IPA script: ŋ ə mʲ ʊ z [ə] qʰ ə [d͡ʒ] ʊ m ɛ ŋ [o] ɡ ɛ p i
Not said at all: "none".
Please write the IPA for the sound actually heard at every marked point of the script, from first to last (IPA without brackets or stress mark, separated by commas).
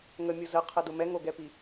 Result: ə, d, o